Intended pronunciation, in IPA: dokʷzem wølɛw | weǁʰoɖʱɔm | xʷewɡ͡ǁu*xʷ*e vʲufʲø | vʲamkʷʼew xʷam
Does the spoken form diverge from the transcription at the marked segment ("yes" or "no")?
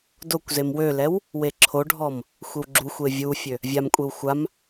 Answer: no